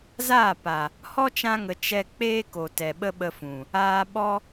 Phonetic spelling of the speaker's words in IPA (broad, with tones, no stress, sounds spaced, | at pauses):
z aː˦˨ p a˨ | h ɔ˦ t͡ʃ ã˧ ŋ ə˨ t͡ʃ ɛ˧ k͡p eː˦ k o˨ t ɛ˨ ɓ ə˦ ɓ ə˧ f ũ˨ | aː˧ ɓ ɔ˦